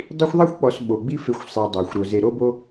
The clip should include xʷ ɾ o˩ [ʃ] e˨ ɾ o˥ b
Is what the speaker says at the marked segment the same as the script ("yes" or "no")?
no